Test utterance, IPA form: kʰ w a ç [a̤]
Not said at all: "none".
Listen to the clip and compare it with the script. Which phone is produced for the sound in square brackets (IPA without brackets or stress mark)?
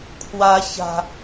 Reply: a̤